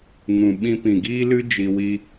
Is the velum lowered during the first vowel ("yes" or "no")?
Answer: yes